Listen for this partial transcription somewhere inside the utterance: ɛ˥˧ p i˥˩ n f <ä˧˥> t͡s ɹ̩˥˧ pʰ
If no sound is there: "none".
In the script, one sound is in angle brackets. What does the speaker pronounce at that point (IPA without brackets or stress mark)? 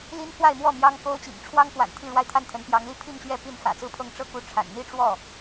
ä̰˨˩